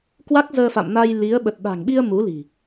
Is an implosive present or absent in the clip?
present